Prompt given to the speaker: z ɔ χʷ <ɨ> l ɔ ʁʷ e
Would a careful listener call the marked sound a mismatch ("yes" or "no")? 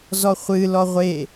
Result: no